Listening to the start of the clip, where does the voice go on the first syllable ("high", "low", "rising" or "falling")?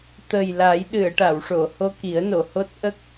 low